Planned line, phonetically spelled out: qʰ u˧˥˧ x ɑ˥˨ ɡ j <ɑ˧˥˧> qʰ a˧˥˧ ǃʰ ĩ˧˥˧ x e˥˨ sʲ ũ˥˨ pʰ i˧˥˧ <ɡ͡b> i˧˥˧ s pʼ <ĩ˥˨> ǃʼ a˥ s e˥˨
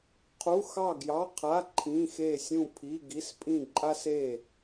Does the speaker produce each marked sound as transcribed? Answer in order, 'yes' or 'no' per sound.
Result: yes, no, yes

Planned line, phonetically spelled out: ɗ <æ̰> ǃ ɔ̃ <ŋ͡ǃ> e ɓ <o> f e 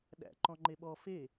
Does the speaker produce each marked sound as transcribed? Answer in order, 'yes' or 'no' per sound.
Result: yes, yes, no

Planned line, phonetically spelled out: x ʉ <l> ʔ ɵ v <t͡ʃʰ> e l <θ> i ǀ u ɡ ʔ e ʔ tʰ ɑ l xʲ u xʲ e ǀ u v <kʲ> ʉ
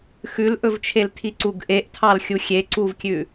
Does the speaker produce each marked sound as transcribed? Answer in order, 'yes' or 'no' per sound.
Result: yes, yes, no, yes

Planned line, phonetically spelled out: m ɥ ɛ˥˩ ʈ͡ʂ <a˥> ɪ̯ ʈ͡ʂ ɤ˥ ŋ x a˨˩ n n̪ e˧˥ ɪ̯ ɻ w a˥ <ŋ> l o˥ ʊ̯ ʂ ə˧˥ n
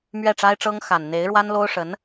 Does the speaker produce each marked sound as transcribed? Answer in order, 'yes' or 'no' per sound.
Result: yes, no

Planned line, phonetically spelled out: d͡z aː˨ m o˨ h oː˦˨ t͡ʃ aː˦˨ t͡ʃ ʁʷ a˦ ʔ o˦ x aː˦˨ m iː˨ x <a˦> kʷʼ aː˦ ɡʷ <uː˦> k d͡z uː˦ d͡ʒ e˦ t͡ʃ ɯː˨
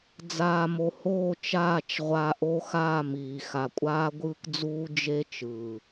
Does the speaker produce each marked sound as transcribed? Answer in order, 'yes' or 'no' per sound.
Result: no, no

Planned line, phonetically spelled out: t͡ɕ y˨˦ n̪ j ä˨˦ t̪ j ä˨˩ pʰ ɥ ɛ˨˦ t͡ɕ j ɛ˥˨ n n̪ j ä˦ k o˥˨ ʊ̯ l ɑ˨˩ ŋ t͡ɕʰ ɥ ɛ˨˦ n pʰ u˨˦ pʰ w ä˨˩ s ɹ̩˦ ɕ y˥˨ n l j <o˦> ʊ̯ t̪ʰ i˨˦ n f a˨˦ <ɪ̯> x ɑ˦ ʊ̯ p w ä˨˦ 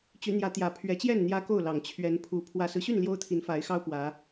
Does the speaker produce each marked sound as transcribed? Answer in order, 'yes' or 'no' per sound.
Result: yes, yes

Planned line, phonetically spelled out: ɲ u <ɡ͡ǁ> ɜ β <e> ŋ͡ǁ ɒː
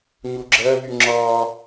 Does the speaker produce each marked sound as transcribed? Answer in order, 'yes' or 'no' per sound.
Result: yes, no

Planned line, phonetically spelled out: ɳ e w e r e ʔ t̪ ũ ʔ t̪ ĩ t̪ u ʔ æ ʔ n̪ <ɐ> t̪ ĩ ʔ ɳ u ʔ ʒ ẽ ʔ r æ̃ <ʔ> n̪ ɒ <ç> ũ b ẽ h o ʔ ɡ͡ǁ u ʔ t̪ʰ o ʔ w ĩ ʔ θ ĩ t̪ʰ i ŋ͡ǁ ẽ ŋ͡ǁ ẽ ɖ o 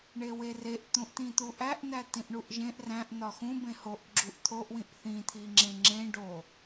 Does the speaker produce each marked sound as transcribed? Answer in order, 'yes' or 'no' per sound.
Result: no, yes, no

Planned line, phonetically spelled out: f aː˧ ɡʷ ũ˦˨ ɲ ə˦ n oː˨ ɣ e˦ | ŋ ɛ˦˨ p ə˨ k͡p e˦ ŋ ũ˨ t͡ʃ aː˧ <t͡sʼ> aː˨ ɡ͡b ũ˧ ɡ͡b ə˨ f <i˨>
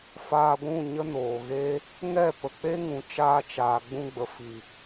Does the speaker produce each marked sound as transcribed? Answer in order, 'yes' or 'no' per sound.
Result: no, yes

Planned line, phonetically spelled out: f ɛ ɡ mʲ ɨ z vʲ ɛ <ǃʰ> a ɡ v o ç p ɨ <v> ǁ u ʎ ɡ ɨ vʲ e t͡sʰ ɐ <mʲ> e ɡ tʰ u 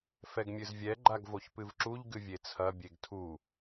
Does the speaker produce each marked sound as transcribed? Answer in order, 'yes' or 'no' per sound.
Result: no, yes, no

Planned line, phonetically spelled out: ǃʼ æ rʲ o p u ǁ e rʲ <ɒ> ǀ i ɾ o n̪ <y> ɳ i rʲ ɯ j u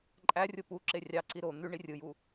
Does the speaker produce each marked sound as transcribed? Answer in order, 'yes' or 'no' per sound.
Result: no, yes

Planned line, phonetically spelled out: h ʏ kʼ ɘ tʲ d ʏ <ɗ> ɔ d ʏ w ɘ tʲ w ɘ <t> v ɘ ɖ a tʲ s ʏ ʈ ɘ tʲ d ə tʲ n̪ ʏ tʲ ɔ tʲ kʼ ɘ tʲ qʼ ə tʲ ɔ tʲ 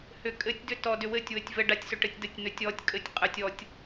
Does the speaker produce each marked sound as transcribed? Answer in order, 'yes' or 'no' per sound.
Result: no, no

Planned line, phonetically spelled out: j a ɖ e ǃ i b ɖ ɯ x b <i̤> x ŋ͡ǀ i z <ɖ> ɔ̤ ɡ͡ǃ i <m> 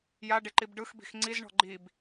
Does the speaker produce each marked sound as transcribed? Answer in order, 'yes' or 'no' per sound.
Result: yes, no, no

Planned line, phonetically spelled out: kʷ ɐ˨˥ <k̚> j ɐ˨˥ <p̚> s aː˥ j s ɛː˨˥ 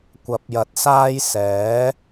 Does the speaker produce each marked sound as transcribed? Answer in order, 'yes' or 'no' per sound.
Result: no, no

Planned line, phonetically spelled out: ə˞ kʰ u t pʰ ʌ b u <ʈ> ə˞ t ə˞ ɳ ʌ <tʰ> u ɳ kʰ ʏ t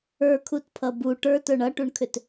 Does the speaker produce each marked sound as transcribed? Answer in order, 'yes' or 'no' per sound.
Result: yes, no

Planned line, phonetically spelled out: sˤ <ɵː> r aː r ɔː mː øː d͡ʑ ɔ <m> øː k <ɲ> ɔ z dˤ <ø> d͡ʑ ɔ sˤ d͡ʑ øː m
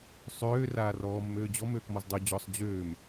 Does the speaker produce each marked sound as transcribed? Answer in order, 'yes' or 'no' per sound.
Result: no, yes, no, yes

